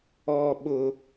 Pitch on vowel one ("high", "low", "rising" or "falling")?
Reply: high